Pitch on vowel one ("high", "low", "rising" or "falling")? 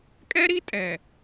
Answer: high